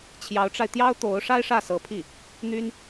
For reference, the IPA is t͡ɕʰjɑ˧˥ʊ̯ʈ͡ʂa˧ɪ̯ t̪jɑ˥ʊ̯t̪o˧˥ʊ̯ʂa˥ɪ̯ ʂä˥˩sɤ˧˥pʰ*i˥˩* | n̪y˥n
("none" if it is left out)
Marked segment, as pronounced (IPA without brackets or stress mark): i˥˩